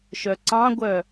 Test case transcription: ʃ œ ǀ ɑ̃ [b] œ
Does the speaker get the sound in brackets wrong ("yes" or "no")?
yes